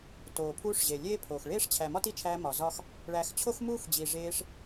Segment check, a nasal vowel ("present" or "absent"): absent